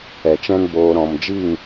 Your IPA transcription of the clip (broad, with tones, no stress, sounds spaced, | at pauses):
ɛ˨ t͡ʃ ɛ̃˦ n b oː˧ ɾ ɔ̃˨ m d͡ʒ i˦˨ ŋ